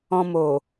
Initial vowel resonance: nasal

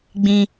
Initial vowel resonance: nasal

